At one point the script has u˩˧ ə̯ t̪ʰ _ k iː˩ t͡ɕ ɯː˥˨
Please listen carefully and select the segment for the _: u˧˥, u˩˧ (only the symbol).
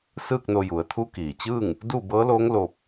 u˧˥